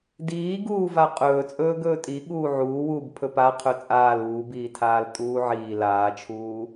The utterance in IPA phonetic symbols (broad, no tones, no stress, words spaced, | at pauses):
diːɡuː vaqʼɵːt͡sʼɵː ɡɵːtʼi ɠuːʕuːwuːb pʰɵpa qʰɵt͡sʼaːl uːbiːtʰaːl tʼuːʕiː laːt͡ʃʰuː